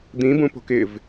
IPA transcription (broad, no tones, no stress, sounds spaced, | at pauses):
d̪ ĩ b ũ p o̤ k ɪ v